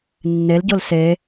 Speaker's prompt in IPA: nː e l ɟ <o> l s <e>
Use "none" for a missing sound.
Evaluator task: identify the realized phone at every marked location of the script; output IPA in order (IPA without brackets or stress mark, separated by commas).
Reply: o, e